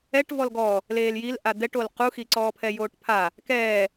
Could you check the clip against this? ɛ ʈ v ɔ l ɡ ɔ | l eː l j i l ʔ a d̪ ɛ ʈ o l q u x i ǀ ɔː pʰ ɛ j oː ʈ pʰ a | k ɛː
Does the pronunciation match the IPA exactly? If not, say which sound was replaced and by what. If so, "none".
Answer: none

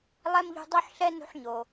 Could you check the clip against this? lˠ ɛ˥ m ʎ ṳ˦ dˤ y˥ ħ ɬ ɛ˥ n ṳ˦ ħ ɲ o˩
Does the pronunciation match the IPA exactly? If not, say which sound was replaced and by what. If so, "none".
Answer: y˥ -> u˥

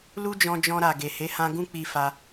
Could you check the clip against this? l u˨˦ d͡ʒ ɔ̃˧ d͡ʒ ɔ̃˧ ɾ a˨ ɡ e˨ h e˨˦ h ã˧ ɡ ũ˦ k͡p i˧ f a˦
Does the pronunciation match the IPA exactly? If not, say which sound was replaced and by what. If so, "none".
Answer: u˨˦ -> u˦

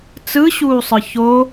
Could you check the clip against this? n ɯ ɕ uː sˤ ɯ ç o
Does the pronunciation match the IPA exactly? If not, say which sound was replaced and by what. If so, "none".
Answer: n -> t͡s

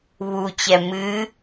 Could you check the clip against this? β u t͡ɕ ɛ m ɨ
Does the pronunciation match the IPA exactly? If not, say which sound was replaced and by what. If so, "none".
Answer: none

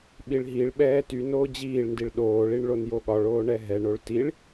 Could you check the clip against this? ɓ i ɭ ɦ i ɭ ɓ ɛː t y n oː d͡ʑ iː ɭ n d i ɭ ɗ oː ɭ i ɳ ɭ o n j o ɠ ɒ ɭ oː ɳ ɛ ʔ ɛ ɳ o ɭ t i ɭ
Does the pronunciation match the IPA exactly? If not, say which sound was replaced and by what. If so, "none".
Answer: ʔ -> ɦ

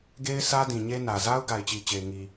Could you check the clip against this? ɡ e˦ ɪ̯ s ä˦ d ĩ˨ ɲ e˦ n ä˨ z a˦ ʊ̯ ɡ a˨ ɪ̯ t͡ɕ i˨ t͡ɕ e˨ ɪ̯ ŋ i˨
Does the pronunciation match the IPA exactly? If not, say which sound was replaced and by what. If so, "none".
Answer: none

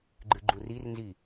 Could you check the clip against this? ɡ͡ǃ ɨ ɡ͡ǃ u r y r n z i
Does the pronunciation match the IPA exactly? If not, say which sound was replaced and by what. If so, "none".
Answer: y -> i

